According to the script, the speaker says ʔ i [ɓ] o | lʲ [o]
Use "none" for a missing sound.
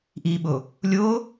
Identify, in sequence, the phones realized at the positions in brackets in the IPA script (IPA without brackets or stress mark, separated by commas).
ɓ, o